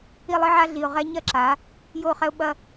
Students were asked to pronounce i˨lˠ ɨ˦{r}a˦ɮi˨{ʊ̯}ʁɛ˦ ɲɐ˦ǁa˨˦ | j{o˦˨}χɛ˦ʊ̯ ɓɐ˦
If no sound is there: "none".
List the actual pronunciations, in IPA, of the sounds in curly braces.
ʕ, ʊ̯, o˦˨

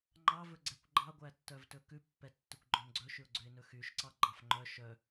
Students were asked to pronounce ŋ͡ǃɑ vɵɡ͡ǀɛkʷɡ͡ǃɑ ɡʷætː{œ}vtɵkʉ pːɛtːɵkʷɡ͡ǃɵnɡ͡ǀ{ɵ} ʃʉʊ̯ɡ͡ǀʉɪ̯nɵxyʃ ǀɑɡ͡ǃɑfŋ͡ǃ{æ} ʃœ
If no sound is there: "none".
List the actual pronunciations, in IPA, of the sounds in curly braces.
œ, ɵ, œ

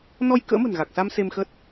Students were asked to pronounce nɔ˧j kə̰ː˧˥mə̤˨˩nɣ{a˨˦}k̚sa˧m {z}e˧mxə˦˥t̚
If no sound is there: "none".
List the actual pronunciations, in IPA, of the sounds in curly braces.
a˨˩, s

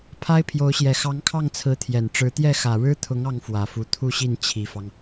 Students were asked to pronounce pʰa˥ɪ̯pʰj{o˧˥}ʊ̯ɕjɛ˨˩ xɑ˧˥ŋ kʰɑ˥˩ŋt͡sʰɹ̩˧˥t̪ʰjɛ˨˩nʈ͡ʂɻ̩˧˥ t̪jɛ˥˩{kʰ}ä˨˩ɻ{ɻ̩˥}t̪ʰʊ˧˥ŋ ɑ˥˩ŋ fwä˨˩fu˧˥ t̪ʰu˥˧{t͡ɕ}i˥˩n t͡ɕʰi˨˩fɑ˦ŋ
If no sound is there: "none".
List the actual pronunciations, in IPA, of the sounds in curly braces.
o˧˥, x, ɻ̩˥, ɕ

